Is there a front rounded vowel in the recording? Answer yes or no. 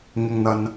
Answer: no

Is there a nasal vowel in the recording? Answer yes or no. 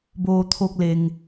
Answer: no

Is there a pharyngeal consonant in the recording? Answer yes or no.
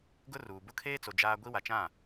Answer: no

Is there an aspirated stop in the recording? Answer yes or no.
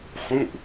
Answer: no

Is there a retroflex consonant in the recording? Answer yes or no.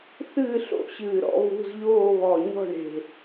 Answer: yes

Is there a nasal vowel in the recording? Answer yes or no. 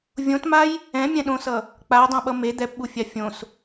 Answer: yes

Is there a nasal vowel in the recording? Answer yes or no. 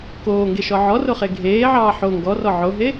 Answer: no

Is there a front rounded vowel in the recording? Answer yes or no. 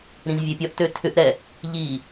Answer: yes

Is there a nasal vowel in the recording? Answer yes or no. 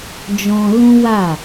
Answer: yes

